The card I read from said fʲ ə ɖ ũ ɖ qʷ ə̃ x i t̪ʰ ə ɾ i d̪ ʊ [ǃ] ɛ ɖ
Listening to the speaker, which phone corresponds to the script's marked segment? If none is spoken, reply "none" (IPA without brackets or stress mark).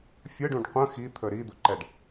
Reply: ǃ